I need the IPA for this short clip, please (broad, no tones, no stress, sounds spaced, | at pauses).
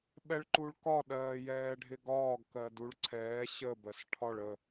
ɓ ɛ ɭ ǃ u ɭ k ɒ ɗ ɜː j ɛː ɖʱ ɪ ɡ ɒː ɡ k ɜ d u ɭ ǀʰ ɛː ɕ ə b ɜ s ʈʰ ɒ ɭ ə